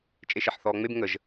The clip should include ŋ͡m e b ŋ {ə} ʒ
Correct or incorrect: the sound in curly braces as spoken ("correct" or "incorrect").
correct